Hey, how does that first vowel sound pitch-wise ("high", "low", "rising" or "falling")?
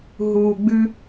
low